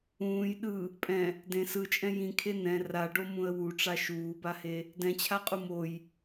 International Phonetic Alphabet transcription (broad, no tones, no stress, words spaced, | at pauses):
ũːj ɗɯ | pʼɛ̃ | dẽ sɯt͡ʃʼɛ̃ jĩkʰe nɛ̃ raɖomũə̯ wuʈ͡ʂa ʃuːbahe | dɛ̃t͡ɕʰaqʼu moj